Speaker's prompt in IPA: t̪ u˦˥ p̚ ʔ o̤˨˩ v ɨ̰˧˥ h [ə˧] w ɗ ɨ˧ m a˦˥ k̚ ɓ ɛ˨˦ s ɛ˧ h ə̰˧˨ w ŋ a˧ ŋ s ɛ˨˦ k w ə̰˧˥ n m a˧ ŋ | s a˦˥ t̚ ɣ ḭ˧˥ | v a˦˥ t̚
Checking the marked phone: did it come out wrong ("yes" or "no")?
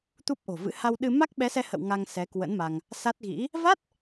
yes